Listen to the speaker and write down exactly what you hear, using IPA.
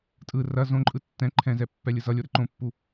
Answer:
tʼ ɯ r ɐ z õ ǃʼ ɯ tː ɛ̃ ǃʰ ɛ̃ z ɛ pː ɛ lʲ ɯ z ʌ lʲ o ɾ ɘ ǃ õ pː u

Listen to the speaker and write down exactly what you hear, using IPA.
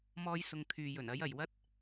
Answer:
m ɔː˧ j s ʊ˨ ŋ kʰ yː˨ j ɵ˨˩ n ɐ˨˥ j ɐ˨˩ j w ɐ˥ t̚

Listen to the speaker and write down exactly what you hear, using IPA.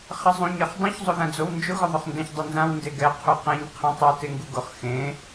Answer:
χ ɪ zˤ ũ ɲ ɛ χ dˤ ũ ç zˤ o ð ã d͡z o w n d͡ʒ ʊ ɣ ʊ ðˤ ʊ χ n d ɛ̃ ç dˤ ɪ n z ã w n d e ɡ ɛ qʰ u q ẽ ɲ qʰ ɛ̃ tˤ u t e ŋ ɡ u ɡ ʊ χ x ẽ

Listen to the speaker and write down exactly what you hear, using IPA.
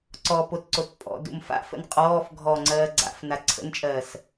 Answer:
ǀ ɔ p o t ǀ o t pʼ ɔ̰ d ṵ m f a̰ f ə̰ n qʼ ɔː f ɡʱ ɔ ŋ͡ǀ ɜː ɡ͡ǀ a̰ f n a ǀʰ ə̰ n t͡ʃʼ ɜː s

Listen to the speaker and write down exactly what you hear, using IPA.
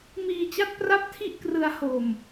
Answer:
m iː˧ t͡ɕ a˦˥ t̚ p r a˥˩ p̚ tʰ i˥˩ ʔ k r ɯ˧ a̯ h o˨˩ m

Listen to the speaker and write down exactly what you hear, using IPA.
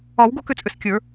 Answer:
ɒ˨˩˦ w ɡ o˦˨ k ʏ˨˩˦ t͡sʼ ʏ˩ s kʲ ə˞˨˩˦

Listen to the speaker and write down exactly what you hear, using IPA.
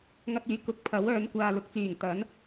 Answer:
ŋ ɐ˧ t̚ yː˨˥ k ʊ˨ k̚ pʰ ɐ˨˥ w œː˨˧ n kʷ aː˨ l ʊ˨˥ k̚ t͡s yː˨˩ ŋ t̪ ɐ˨˥ n

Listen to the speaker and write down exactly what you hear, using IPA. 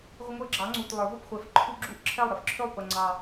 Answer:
ʁʷ ɪ˦ ŋʷ ə˞˦ ɡ͡ǁ ɑ˨˥ ŋ͡ǀ u˨˩ t lˠ ə˞˨˩˦ v ɔ˥˩ p χʷ ɛ˨˥ f ǃʰ u˦ ɡ͡ǁ u˥˩ ʔ ǁʰ ɛ˥˩ lˠ ɾ ɪ˦ f ǁʰ ø˥˩ lˠ p ə˨˩ ŋ͡ǀ ɑ˨˩

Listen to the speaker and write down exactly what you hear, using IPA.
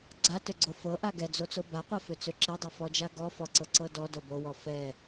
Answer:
ɡ͡ǀ a t ø ɡ͡ǀ o f ɤ ʔ a ɡ ɛ d͡z o t͡s o b a qʷ ɛ f ø t͡s ø ǁ ɛ dˤ ɤ f ɔ d͡ʒ a ɡ ɔ f ɔ ǀ ɤ ǀ ɤ d ɔ d o b o w ɔ f ɛ

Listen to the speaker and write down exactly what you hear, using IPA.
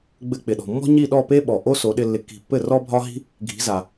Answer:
ɡ͡b ɘ˧ k͡p ɪ˩ ɗ ɔ̤˩ mː ɔ̤˥ ɲ i˥˩ ɗ ɔ˥˩ p e˥ ɓ ɔ˩ ʔ o˥ s o˩˥ ɗ ɪ˧ lː ɪ˧ kː i̤˧ pː ɘ˥˩ r ɔ˥ bʱ ɒ˥ ɦ i̤˥ | ɡʱ i̤˩˥ z a˩

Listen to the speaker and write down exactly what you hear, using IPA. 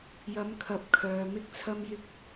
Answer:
j ɐ˨˧ m kʰ ɐ˨˥ p̚ kʰ œː˨ m ɪ˥ k̚ t͡sʰ ɐ˥ m j ɪ˥ k̚

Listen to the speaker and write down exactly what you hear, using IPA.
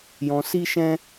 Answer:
j ɔ̃˧ s i˦ ʃ ɛ̃˦

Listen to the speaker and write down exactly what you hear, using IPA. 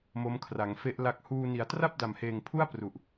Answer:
m o˦˥ m kʰ r a˩˦ ŋ f e˦˥ ʔ l a˦˥ k̚ h uː˧ n i˩˦ a̯ t r a˥˩ p̚ d a˨˩ m h eː˨˩ ŋ pʰ u˥˩ a̯ p r u˨˩ ʔ

